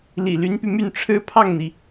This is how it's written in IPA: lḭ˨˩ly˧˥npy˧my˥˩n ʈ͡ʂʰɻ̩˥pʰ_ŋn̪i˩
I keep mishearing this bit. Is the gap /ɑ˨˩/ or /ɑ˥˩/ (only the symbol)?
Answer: ɑ˥˩